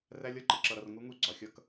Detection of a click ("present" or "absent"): present